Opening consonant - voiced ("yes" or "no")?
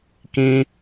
no